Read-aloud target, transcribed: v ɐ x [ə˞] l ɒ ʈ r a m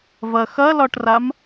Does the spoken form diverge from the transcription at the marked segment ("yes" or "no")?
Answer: yes